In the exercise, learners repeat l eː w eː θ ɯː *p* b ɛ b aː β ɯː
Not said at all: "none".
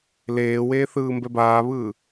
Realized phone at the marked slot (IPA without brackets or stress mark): m